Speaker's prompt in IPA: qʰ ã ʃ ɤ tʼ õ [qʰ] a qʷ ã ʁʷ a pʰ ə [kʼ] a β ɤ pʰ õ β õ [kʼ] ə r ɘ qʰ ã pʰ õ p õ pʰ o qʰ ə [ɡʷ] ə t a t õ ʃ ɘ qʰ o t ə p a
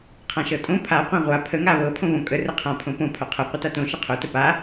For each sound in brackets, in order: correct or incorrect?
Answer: incorrect: pʰ, incorrect: ŋ, correct, incorrect: qʷ

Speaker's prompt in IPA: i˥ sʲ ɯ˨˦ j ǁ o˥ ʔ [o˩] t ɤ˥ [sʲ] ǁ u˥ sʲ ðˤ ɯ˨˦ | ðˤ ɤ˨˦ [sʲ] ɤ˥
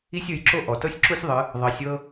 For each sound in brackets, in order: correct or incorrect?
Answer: incorrect: ɔ˩, correct, correct

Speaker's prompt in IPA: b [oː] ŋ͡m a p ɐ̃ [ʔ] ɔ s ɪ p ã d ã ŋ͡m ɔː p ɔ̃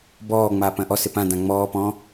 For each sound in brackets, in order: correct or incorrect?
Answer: incorrect: ɔː, correct

